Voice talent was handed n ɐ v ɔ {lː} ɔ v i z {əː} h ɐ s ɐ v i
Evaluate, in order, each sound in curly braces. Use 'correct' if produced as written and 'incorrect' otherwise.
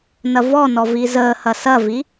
incorrect: n, correct

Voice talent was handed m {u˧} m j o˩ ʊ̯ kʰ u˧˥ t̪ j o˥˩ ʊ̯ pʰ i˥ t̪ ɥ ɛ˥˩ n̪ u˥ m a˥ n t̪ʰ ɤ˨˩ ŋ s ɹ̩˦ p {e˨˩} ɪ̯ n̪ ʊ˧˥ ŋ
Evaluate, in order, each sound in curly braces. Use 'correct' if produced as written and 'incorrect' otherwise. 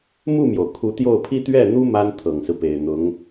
incorrect: u˥˩, correct

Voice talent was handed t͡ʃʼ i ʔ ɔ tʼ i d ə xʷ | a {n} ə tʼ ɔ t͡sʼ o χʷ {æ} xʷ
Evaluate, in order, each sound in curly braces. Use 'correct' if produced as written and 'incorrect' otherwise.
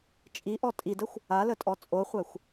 incorrect: l, correct

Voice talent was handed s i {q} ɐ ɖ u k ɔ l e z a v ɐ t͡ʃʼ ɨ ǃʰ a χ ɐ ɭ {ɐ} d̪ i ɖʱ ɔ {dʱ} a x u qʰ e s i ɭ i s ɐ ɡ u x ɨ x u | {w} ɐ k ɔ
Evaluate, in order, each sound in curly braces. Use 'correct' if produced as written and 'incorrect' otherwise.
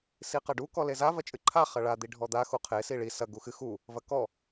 correct, incorrect: a, incorrect: d̪, incorrect: v

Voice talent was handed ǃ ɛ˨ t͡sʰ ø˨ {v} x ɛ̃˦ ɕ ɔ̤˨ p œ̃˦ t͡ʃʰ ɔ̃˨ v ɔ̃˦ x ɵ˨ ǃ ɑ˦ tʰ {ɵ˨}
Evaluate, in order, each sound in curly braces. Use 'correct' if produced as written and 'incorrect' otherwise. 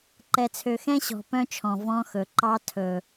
incorrect: none, correct

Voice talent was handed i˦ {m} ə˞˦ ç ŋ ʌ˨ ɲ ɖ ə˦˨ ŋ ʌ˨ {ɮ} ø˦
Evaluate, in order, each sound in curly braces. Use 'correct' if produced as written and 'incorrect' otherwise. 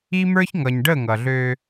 correct, correct

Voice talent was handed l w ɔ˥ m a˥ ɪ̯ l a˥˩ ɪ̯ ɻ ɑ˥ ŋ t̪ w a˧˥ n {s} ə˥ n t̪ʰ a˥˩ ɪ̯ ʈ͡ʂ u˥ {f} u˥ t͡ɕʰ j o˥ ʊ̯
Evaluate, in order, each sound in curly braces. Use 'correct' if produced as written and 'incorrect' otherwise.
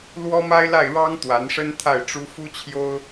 incorrect: ʂ, correct

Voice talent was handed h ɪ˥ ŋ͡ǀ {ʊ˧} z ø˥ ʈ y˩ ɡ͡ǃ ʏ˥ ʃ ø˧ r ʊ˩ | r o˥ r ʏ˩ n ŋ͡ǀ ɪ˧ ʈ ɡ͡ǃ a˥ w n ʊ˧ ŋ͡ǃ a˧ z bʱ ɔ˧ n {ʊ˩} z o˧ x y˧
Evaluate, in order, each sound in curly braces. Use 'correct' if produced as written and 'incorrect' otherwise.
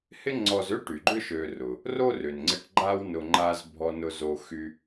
incorrect: ɔ˧, incorrect: ʊ˧

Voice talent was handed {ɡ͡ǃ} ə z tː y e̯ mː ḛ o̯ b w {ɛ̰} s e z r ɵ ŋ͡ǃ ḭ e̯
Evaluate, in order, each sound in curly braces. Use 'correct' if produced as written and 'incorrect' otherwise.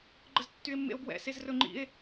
correct, correct

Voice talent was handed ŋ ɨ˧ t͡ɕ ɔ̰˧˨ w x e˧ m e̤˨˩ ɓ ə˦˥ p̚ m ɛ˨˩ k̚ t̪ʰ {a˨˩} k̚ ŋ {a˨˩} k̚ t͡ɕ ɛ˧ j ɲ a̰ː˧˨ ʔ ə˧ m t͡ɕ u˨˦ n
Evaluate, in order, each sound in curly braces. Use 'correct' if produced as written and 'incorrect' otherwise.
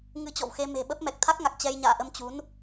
incorrect: a˦˥, correct

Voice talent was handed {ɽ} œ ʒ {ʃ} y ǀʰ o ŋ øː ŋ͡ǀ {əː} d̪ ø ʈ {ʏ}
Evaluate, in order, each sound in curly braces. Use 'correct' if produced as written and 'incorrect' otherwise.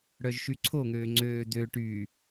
correct, correct, incorrect: øː, incorrect: y

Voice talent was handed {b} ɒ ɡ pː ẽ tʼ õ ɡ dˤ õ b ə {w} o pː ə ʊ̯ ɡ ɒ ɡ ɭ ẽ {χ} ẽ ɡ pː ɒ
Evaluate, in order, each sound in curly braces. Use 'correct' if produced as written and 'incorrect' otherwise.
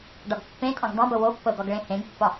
incorrect: ɖ, correct, incorrect: h

